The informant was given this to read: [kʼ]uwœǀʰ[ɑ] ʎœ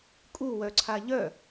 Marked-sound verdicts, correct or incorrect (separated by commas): correct, incorrect